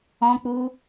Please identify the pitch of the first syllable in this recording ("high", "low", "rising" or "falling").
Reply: high